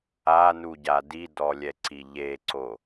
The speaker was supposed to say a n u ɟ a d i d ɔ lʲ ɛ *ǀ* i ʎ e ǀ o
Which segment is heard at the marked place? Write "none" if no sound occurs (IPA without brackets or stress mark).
ǀ